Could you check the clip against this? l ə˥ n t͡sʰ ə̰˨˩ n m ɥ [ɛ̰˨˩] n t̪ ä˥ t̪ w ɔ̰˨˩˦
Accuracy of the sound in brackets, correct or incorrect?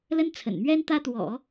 incorrect